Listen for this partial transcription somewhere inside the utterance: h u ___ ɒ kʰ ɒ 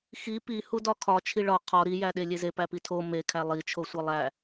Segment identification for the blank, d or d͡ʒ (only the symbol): d